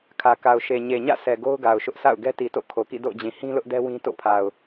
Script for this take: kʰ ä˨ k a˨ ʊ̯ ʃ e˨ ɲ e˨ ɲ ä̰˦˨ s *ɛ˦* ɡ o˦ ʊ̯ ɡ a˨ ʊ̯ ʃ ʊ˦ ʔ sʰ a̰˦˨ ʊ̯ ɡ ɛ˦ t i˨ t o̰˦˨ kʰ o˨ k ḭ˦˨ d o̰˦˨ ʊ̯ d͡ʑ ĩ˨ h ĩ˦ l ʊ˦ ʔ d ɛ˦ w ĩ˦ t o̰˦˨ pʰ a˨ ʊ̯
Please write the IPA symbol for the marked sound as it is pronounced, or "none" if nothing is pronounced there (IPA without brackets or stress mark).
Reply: ɛ˨